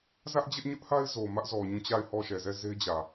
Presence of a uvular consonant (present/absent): absent